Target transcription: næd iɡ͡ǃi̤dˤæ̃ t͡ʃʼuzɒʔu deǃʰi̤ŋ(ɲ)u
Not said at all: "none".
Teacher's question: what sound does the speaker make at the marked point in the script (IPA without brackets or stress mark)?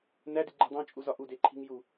j